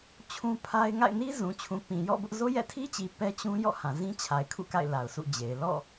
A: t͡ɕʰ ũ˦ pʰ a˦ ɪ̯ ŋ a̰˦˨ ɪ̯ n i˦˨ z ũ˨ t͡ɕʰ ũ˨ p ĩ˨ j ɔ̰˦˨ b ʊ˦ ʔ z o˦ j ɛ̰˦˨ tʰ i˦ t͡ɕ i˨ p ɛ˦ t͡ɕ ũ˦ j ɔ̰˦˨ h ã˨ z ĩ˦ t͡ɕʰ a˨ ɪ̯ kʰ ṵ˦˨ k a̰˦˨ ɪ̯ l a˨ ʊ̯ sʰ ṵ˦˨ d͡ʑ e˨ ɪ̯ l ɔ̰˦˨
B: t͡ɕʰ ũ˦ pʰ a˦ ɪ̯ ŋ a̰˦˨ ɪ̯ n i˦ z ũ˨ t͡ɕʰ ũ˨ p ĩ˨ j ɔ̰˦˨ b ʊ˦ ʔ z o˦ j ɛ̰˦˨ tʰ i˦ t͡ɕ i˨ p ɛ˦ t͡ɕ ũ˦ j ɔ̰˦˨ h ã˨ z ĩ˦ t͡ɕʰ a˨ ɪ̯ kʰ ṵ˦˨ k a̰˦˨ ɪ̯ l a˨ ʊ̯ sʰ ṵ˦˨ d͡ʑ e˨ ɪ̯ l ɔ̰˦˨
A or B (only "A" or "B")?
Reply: B